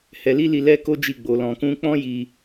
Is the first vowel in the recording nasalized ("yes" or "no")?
no